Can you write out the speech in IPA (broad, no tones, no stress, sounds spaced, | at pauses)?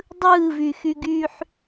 dˤ ɯː v y x y ɡ y ħ